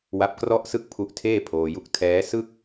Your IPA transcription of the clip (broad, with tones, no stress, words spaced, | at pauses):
wa˦˥p̚krɔ˥˩ʔsɯ˥˩k̚pʰu˦˥ʔ tʰeː˥˩pʰoː˧ju˦˥k̚ tʰɛː˦˥sɯ˥˩k̚